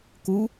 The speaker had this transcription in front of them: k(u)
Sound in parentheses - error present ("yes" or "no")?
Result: no